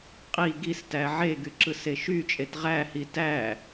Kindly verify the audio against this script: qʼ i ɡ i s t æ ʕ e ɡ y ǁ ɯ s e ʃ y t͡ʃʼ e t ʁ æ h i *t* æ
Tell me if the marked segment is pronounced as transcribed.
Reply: yes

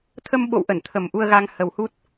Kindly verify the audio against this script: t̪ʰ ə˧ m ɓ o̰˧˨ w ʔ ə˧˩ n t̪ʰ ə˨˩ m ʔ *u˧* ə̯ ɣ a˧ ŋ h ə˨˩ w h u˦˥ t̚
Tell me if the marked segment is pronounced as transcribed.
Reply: yes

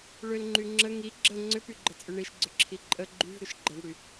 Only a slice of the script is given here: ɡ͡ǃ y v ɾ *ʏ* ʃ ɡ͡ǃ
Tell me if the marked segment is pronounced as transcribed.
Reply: yes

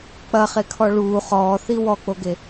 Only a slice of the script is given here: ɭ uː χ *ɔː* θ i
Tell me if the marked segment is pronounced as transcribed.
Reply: yes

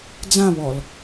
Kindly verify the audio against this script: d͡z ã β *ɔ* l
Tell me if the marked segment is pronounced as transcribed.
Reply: yes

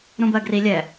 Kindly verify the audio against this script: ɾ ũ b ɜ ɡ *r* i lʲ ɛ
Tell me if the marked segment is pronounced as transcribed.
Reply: yes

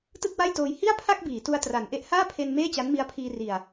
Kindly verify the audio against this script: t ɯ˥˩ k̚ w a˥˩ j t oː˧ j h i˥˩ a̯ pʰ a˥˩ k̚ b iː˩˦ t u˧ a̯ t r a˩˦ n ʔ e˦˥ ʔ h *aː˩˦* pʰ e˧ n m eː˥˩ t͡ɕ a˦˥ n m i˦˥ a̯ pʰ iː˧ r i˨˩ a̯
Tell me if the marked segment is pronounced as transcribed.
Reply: no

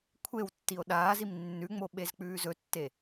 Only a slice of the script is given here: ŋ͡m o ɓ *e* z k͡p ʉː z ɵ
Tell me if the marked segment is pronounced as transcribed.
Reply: yes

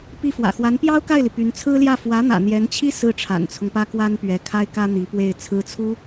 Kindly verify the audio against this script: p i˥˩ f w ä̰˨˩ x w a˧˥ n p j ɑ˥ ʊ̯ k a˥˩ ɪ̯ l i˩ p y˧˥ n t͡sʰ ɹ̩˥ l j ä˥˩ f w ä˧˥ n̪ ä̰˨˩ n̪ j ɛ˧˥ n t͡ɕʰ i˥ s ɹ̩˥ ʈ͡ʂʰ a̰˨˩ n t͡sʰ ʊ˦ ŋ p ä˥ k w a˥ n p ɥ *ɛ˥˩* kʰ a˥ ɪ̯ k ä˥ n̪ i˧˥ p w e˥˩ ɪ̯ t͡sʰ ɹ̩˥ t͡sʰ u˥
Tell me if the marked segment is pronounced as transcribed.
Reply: no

